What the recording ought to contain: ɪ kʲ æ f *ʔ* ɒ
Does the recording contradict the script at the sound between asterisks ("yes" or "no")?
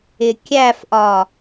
no